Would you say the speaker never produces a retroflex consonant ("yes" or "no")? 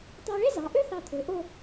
no